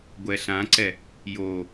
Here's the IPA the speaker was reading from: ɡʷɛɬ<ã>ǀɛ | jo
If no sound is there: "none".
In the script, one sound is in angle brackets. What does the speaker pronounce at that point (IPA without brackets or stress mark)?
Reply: ã